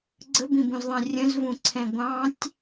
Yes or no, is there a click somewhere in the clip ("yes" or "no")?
yes